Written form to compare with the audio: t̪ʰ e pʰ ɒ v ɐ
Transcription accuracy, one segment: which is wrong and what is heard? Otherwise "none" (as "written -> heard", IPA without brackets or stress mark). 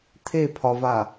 ɐ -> a